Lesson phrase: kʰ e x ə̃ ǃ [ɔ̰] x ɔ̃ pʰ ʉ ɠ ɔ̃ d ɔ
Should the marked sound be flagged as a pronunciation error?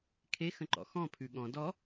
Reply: no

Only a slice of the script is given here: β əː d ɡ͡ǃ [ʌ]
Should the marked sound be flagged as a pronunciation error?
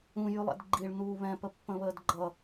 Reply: no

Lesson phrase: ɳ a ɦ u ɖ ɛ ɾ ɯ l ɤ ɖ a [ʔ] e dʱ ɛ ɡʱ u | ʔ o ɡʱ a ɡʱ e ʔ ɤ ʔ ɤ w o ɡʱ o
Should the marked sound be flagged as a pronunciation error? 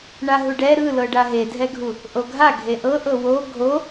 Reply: yes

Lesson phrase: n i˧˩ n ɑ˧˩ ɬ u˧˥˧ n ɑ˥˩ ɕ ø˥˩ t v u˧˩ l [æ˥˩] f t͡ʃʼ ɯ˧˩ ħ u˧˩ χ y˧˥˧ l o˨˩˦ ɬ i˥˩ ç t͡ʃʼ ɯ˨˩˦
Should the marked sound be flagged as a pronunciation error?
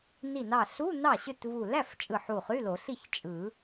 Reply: no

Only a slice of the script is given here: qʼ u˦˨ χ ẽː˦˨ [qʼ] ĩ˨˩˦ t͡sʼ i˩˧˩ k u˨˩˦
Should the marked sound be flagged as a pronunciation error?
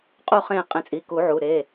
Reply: no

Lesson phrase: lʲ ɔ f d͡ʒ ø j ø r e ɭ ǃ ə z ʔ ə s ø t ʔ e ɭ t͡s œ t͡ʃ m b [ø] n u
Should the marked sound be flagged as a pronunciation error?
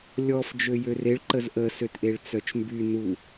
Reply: yes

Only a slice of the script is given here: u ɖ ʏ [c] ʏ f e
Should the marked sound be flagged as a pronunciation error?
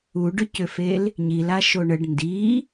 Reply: no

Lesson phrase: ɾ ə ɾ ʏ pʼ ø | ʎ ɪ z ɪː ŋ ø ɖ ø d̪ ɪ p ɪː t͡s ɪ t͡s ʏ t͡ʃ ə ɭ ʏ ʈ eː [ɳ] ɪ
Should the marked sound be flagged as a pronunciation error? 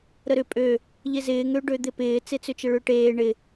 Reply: no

